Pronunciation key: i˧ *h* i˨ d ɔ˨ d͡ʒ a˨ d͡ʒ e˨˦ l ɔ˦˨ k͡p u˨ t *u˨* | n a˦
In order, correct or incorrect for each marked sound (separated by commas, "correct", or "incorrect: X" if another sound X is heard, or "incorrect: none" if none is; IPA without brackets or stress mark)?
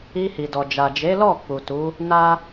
correct, incorrect: u˨˦